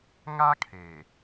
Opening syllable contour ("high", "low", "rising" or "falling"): high